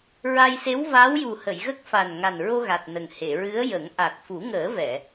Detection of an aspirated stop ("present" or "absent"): absent